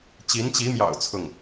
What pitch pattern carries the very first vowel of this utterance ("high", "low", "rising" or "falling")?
rising